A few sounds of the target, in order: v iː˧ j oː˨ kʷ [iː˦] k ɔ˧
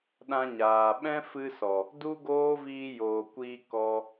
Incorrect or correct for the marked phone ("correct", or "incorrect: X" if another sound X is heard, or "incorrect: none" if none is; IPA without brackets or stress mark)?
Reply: incorrect: iː˧